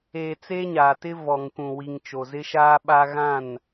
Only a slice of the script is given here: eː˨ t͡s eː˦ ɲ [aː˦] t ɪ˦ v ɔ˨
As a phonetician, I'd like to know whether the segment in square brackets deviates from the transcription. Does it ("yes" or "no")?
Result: yes